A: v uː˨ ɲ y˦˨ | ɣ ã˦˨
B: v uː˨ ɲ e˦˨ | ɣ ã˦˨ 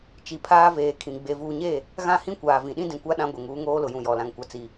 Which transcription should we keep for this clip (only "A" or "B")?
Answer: B